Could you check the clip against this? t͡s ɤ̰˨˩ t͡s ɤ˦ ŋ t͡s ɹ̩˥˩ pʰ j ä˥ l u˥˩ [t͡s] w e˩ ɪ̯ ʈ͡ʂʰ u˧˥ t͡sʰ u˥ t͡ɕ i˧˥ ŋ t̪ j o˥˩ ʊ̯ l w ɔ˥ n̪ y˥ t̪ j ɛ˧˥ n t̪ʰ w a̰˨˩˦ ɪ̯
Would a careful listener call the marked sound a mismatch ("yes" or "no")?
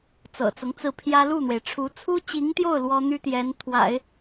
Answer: yes